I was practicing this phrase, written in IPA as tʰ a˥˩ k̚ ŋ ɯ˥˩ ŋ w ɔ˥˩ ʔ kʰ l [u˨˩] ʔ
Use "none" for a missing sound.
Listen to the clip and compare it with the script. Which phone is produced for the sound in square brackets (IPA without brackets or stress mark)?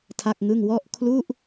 u˥˩